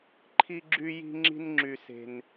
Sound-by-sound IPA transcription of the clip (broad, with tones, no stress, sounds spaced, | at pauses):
ǃʰ i˥ ɡ͡ǁ y˥ j i̤˥ ŋ͡ǁ i̤˥ n ŋ͡ǁ y˥ s e̤˥ n